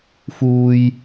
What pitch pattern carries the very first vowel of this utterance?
high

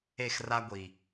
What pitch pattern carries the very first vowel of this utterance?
falling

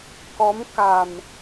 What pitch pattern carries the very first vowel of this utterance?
rising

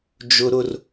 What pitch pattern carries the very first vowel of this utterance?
high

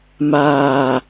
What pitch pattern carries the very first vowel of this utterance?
low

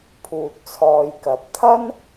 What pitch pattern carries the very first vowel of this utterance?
low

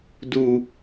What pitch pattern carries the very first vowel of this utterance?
low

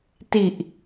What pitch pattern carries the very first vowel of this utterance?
low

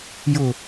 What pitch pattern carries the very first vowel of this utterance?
low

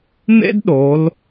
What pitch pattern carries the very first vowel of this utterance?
high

